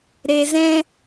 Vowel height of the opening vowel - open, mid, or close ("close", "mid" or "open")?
mid